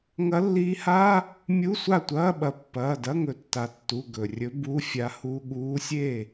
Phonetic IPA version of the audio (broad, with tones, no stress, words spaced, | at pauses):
ŋɐ˧˥lːiː˧˥ha˧˥˧ | mʲu˧˥˧sʷa˥˩tʷɐː˧˥˧ɓɐ˩˧ pːɐː˩˧˩dɐ˧˥˧ŋɵ˩˧ tːa˩˧tːu˩˧˩ ɡɵ˩ rʲɵ˧˥ bu˧˥˧fʲa˧˥hu˧˥˧ ɠuː˧˥sʲe˥˩